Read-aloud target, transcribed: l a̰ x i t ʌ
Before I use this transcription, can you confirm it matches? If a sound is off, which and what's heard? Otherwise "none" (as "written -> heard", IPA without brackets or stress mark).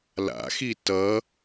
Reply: none